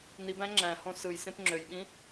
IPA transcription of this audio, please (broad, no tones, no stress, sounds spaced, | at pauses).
n i b æ̃ ŋ͡ǁ æ̃ h õ s ɯ j s ẽ p ŋ͡ǁ ø j ɓ ĩ